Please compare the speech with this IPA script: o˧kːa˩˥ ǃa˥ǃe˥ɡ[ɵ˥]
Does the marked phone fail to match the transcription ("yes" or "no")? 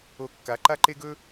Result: no